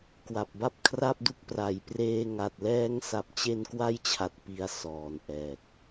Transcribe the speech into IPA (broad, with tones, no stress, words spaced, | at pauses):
kwa˨˩p̚ba˥˩p̚ kʰra˥˩p̚du˦˥k̚ pra˨˩jpreː˧ ŋa˨˩t̚lɛː˦˥ŋsa˨˩p̚ t͡ɕe˧nkwa˦˥jt͡ɕʰa˨˩t̚ pi˧a̯ sɔː˨˩nʔɛː˨˩k̚